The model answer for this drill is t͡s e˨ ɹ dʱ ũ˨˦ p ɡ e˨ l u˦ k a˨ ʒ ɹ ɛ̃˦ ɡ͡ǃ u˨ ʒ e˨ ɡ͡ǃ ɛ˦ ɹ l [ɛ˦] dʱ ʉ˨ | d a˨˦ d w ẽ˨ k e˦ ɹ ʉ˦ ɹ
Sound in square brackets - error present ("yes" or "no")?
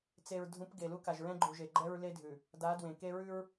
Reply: yes